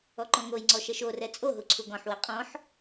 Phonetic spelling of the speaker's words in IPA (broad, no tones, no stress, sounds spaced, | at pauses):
ɔ ǃ ɔ̃ ŋ o j ŋ͡ǀ ɔ ʃ ɛ ʃ o r ɛ t͡sʼ o ɦ u ǀʰ u ɡ ɔ̃ ħ w ɛ qʼ ɔ̃ ħ